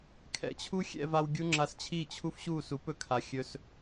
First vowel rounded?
no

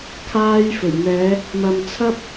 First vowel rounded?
no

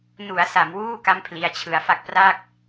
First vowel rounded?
yes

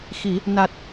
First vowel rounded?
no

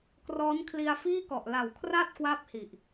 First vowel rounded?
yes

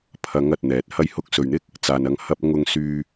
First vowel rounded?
no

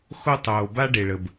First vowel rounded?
yes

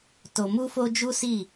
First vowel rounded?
yes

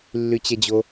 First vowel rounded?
yes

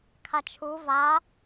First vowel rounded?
no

